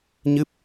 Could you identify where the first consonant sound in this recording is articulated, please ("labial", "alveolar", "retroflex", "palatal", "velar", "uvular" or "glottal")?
palatal